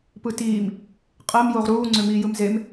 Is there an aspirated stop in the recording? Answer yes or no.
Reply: no